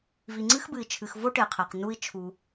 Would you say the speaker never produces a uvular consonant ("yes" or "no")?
no